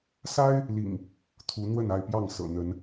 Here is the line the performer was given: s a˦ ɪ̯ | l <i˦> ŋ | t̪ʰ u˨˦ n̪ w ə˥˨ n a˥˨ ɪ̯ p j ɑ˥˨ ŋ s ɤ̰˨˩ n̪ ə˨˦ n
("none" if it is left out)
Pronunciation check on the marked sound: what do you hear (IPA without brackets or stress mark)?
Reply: ḭ˨˩